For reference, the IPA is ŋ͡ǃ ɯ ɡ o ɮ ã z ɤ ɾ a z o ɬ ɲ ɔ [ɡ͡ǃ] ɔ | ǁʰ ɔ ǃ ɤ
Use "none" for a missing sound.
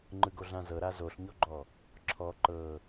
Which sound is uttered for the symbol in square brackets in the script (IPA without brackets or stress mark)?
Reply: ɡ͡ǃ